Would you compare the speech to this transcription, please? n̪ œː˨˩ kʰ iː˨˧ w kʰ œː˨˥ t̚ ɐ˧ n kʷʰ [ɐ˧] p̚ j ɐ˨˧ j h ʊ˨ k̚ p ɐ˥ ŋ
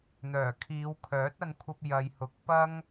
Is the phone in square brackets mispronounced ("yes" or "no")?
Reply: no